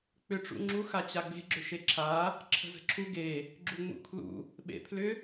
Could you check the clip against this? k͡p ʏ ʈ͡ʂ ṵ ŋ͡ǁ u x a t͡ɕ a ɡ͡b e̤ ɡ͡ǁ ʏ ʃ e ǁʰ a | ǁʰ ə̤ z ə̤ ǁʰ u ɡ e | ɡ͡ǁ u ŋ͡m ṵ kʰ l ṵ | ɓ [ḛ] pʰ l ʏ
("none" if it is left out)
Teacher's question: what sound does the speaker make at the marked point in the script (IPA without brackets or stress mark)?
ḛ